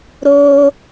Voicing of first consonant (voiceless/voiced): voiced